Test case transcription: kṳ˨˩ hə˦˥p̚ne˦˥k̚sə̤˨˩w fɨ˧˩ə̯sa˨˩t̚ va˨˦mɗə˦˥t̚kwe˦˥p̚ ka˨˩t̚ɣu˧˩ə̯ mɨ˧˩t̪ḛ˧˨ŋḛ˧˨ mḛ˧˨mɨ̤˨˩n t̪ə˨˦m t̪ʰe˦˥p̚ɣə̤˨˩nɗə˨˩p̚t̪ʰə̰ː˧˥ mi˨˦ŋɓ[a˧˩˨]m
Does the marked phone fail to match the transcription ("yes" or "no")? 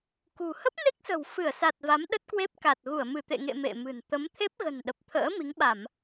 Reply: no